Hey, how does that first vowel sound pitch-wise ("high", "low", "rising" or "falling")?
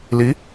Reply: rising